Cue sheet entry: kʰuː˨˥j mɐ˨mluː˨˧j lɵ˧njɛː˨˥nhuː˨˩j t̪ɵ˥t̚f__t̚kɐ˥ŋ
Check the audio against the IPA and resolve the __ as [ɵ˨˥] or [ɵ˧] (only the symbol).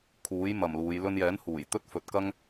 ɵ˨˥